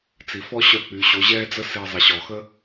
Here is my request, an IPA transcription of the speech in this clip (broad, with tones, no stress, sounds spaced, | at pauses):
t͡s i˩ f ɔ˥ ɕ œ˧ k͡p y˩˧ ɕ o˩˧ ʑ ɛː˥ d͡z ə˥ s e˧ zˤ ə˩˧ ɕ ɔ˩ x ə˥